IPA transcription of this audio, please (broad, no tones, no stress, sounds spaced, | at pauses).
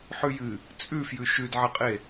ħ ʉ j ɨ | t͡sʼ ʉ f j ʉ ʃ ʉ d ʕ ɐ qʼ e